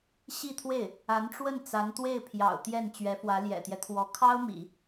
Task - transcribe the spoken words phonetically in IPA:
ɕ i˥˧ t̪ʰ w e˥˩ ɪ̯ | a˧˥ n ʈ͡ʂ w ə˥˩ n t͡s a˧˥ n t̪ w e˥˩ ɪ̯ pʰ j ɑ̰˨˩ ʊ̯ t̪ j ɛ˥˩ n t͡ɕ ɥ ɛ˧˥ f w ä˧˥ l j ɛ̰˨˩ t̪ j ɛ˦ t̪ʰ w ɔ˧˥ kʰ ɑ˥ ʊ̯ m ḭ˨˩˦

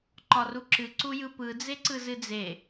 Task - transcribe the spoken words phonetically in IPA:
ǃ ɒ r u ǁ ɨ ǀ u j ɯ p ɯ d͡z e ǀ ɯ z ɨ d͡z e

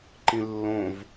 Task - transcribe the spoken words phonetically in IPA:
ǃ ĩ lː õ v

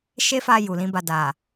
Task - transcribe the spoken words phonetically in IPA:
ʃ e˦ f a˧ j u˨ l ĩ˨˦ b a˧ d a˨

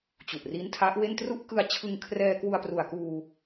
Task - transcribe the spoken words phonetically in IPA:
t͡ɕ u˨˩ ʔ r i˦˥ n tʰ a˦˥ ʔ w e˥˩ n t r u˦˥ ʔ k ɯ˧ a̯ t͡ɕʰ ɯ˧ ŋ kʰ r ɛː˧ k w u˧ a̯ p r u˨˩ a̯ k uː˧

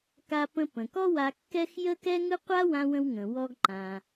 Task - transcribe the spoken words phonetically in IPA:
k a˧ p ə̃˧ p ə̃˩ k ɔ˥ w a˧ kː ɛ˥ x j ə˥ k ɛ˥ ŋ ɯ˥ qʷ a˥ w ã˧ w ə̃˧ w ŋ ə̃˩ w ɔ˧ ɡ ǃ ã˩

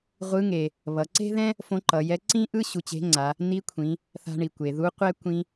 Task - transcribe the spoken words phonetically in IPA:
ʁʷ ɯ˧˥ ŋ e˩ | β ʌ˩˧ ǀ e̤˥ ð ɛ̃˥ | f õ˧˥ ǃ ʌ˩˧ j ɛ˧˥ ǀ ĩ˥ ʔ ɯ˥ ɕ u˧ t͡ɕ e̤˧˥ ŋ͡ǀ a˩˧ | n i˧˥ kʷʰ ĩ˩˧ | θ a̤˧ ɳ i˩ kʷ e˩ ð u˧˥ qʷ ɛ˥ kʷ ĩ˧

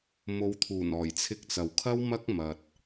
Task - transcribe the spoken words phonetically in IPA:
m o˨˧ w t̪ʰ uː˨˩ n ɔː˨˩ j t͡sʰ ɪ˧ k̚ t͡s ɐ˨ w kʰ ɐ˥ w m ɐ˥ k̚ m ɐ˨ t̚

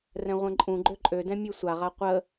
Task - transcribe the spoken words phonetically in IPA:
r ɛ̃ ʁʷ ɛ̃ ǃʼ ũ ɡ͡ǃ ø ǃʼ ø d ɛ̃ mʲ ø sʷ a ʁ a qʷ ə

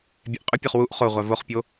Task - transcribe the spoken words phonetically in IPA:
bʲ ɛ ʔ qʼ ʏ pʲ o χ w u ʔ χ o ʁʷ a v o χ pʲ o

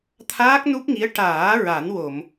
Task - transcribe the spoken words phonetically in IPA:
t̪ʰ aː˦˥ k̚ n u˦˥ p̚ ŋ i˧˥ ə̯ ʈ aː˨˩˦ ɹ a˨˩˦ n w o˨˩˨ m

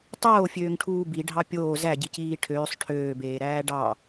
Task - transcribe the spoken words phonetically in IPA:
tˤ oː fʲ øː ŋ ʈʰ uː b i ɖʱ ɑ pʲ oː z æ ɟ i c iː ʈʰ øː sˤ ʈʰ øː b eː ɾ æː ɖ ɑ

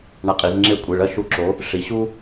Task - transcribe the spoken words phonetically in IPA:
ɳ a˧˩ qʼ i˩˧ z ŋ͡ǁ e˥˨ kʷʼ e˩˧˩ ɭ ɐ˥˨ ʃ u˦ ǁ o˨˥ | ʂ i˩˧ ɕ u˦

